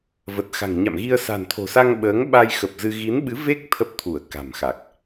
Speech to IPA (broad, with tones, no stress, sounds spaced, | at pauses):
v ə˨˩ t̚ x a̤˨˩ ŋ ɲ a̰˧˨ m ɣ i˧ ə̯ s a̤˨˩ n t̪ʰ o̤˨˩ s a˧ ŋ ɓ əː˨˦ ŋ ɓ a˧ j x ə˨˩ p̚ z ɨ˧ ɣ i˨˦ n ɓ ɨ˨˦ v e˦˥ k̚ t̪ʰ ə˦˥ p̚ t̪ʰ u˧˩ ə̯ k a̤˨˩ m x a˨˩ k̚